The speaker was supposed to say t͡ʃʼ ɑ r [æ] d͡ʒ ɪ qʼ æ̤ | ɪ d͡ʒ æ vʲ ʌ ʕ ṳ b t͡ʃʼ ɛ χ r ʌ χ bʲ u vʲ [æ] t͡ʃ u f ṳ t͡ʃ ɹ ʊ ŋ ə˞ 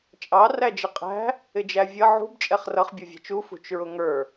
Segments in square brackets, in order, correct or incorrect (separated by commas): correct, incorrect